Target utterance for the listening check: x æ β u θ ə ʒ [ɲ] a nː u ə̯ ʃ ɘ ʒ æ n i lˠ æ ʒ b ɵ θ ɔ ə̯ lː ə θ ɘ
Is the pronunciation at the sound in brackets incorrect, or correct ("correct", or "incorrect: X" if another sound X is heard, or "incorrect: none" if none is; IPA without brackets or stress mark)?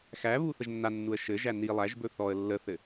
incorrect: nː